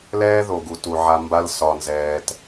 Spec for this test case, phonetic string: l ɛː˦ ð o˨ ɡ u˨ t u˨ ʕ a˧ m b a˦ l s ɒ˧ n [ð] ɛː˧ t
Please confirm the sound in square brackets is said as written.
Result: no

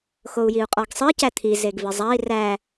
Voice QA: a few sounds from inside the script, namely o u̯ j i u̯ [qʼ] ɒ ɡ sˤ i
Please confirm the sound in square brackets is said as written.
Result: yes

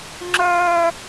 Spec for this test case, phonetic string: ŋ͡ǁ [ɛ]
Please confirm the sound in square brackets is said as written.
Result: no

